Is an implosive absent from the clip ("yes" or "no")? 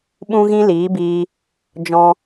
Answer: no